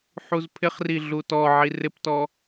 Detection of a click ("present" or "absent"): absent